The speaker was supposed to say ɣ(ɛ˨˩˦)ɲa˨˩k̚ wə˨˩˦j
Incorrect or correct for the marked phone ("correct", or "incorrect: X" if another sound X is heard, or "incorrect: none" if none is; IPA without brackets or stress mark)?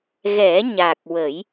correct